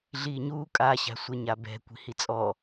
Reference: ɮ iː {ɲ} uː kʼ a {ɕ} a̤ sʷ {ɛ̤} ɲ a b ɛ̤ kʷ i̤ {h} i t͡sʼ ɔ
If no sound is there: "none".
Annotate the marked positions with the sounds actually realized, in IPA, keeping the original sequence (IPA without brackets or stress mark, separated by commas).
ɲ, ɕ, ɛ, h